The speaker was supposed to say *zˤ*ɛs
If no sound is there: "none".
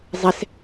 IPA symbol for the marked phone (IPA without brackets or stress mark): zˤ